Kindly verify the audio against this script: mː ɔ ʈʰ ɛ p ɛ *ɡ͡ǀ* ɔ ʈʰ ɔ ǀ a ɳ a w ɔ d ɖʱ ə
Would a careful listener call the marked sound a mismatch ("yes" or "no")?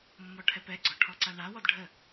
no